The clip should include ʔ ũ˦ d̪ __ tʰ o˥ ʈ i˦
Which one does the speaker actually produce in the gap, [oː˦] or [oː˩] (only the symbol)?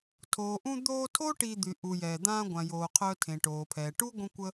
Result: oː˦